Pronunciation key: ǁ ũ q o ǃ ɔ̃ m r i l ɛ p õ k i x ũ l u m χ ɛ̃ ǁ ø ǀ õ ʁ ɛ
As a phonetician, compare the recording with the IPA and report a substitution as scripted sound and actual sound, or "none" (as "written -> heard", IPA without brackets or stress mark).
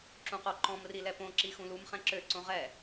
k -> ǁ